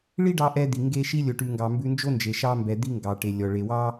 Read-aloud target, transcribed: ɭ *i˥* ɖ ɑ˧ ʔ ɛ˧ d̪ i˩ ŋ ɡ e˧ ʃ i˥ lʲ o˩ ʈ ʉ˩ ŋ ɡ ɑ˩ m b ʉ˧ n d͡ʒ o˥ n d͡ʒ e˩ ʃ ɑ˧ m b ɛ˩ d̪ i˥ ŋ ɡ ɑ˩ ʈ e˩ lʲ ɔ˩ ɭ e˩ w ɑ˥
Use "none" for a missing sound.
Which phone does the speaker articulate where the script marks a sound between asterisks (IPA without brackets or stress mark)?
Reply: i˥